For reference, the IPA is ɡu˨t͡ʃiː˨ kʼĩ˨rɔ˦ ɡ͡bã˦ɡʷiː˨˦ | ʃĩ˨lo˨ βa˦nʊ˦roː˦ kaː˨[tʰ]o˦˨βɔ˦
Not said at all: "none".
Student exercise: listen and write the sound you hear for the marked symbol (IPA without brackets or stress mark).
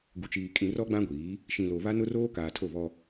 tʰ